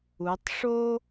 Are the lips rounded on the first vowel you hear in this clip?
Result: yes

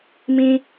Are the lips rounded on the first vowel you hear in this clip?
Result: no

